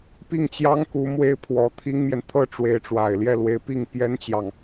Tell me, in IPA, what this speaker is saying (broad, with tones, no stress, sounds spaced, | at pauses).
p i˥˩ ŋ t͡ɕ j ɑ˥ ŋ k u˧˥ m w e˥ ɪ̯ pʰ w ɔ˧˥ t̪ʰ i˥ ŋ m j ɛ˨ n t̪ʰ ɤ˥ ʈ͡ʂ w e˧˥ ɪ̯ ʈ͡ʂ w a˨˩ ɪ̯ l j ɛ˥˩ l w e˧˥ ɪ̯ p i˥˩ ŋ p j ɛ˥ n t͡ɕ j ɑ˨ ŋ